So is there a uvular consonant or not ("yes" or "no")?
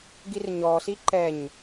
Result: no